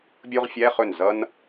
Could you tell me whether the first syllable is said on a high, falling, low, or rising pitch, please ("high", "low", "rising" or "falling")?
high